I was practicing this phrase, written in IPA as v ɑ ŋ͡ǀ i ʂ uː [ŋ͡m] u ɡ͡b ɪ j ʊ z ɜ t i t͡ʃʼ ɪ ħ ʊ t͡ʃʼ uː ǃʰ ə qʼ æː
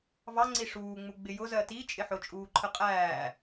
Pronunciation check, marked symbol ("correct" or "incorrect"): correct